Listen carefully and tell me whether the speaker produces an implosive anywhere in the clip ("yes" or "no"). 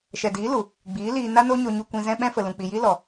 yes